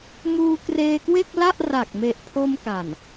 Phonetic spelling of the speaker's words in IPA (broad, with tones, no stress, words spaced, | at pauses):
muː˧kreː˧kwe˥˩k̚la˥˩ʔ ra˨˩k̚me˨˩ʔpʰo˧m ka˨˩n